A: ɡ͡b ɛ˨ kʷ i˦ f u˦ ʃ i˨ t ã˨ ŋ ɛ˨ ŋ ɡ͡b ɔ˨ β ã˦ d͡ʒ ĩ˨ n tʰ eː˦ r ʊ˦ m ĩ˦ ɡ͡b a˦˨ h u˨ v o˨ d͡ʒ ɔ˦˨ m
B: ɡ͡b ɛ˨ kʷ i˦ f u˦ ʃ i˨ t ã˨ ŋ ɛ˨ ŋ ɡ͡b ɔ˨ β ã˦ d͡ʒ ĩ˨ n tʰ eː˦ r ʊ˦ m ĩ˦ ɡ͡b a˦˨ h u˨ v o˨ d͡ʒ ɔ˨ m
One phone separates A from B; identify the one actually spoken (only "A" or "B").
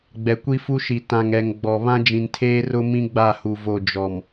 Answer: B